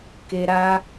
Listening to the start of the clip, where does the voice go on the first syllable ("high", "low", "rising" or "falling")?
high